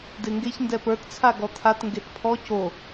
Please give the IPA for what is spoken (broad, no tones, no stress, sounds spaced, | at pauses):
d e ŋ ɡ e ç n d ɛ p ə˞ t t͡sʰ a ɡ ɔ t̪ʰ a t ŋ ɡ e t pʰ ɔ c o